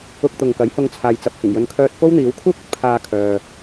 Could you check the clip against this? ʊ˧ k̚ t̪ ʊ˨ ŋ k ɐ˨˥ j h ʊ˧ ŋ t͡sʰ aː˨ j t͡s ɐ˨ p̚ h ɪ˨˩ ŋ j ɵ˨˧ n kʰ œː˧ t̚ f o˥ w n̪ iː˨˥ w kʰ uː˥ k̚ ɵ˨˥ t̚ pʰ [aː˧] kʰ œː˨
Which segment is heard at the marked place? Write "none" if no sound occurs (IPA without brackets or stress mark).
aː˧